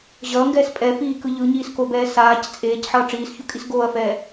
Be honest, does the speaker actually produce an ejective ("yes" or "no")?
yes